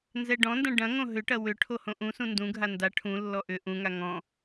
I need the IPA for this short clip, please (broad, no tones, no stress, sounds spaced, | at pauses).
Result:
n z ɛ ɖ ɔ̃ n d ɐ̃ ɖ ɐ̃ ŋ õ ɦ ʏ ʈ ɐ w ʏ ʈʰ o h õ ʔ ũ s ũ n d ũ ɡʱ a n d a ʈʰ ũ lː ɔ ʔ ʏ ʔ ũ ŋ a ŋ ɔ̃